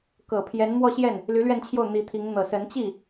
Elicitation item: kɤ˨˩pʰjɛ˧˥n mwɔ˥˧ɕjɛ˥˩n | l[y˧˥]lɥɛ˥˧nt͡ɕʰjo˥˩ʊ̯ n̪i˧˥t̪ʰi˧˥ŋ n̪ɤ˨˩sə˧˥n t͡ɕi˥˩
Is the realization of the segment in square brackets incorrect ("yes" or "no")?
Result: no